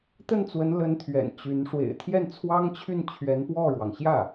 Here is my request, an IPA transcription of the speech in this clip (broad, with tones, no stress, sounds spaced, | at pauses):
t̪ ə˥˩ n t͡s w ə˧˥ n l ə˧˥ n t̪ʰ ɥ ɛ̰˨˩ n t͡ɕ y˧˥ n ʂ w ḛ˨˩ ɪ̯ t̪ʰ j ɛ˥˩ n t͡sʰ w ɑ˥ ŋ t͡ɕʰ y˥˩ n t͡ɕʰ ɥ ɛ˧˥ n p w ɔ˥˩ ɻ w ɑ˩ ŋ ɕ j ä˥˩